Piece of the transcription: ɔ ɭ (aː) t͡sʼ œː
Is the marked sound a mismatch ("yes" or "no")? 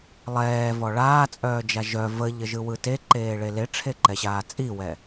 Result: no